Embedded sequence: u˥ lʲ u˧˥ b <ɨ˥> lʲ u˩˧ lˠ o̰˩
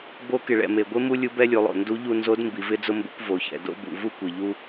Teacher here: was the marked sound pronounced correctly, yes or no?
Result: no